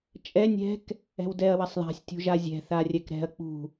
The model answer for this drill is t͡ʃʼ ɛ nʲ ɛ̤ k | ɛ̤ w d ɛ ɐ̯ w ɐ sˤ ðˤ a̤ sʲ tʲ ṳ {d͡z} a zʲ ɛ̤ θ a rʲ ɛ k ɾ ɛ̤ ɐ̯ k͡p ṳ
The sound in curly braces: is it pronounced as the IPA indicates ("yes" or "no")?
no